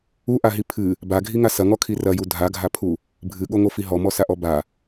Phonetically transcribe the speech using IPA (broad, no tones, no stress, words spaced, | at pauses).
uʔaɦi pʰɨ | baɡʱiŋa sɐŋɔkʰi rɐju dʱaɡʱapʰu | bʱɨɠoŋofi ɦɔmɔsaʔɔ ba